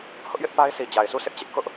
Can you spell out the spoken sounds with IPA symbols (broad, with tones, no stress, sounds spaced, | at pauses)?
h ʊ˦ ʔ j ɪ˦ ʔ p a˦ ɪ̯ sʰ i˨ d͡ʑ a˨ ɪ̯ sʰ u˦˨ sʰ ɪ˦ ʔ t͡ɕ ɪ˦ ʔ k ʊ˦ ʔ